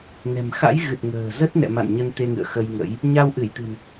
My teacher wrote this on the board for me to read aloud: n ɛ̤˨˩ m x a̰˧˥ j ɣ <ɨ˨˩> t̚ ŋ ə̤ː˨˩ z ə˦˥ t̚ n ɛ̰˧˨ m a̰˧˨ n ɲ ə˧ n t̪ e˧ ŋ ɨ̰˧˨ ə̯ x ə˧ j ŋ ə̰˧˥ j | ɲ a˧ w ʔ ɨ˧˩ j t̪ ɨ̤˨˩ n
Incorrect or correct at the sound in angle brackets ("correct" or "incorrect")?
correct